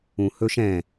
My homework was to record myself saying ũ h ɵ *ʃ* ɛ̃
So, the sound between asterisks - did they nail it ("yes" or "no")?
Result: yes